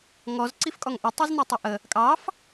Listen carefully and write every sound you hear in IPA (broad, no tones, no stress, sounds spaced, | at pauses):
ŋ ɔ z ǀ i f kʼ ɔ ŋ ʔ ɵ tˤ i z n u tˤ ɵ ʔ ə | kʼ ɑ f